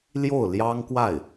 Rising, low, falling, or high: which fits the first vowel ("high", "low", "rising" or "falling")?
falling